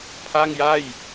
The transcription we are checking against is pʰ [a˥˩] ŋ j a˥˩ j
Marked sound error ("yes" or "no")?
no